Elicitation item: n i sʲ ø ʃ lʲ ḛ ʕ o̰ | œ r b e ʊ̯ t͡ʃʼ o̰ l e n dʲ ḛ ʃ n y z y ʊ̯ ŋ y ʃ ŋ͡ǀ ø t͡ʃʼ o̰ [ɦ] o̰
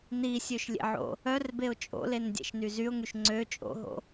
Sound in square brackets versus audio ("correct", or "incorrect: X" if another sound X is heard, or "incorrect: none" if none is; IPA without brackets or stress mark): correct